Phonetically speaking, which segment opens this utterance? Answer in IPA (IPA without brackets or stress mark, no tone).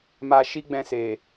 m